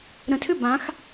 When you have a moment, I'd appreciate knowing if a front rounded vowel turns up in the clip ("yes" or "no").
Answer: yes